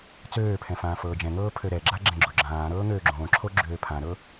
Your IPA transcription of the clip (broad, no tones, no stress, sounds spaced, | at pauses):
t͡s øː pʰ ɛ̃ f ãː f ɤː d͡ʒ ɛ̃ ŋ ɤː pʰ ø ɾ ɛ ɡ͡ǁ a ɡ͡ǁ ɛ̃ ɡ͡ǁ o ɡ͡ǁ ãː ɾ ɤː ŋ øː ɡ͡ǁ õː ǁʰ o ɡ͡ǁ øː pʰ ã ɾ ɤ